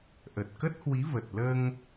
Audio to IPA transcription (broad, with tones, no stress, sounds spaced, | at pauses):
ʔ ə˨˩ t̚ k ə˦˥ t̚ h w i˨˦ v ə˨˩ t̚ l əː˧ ŋ